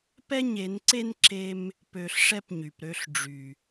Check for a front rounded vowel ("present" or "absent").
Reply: present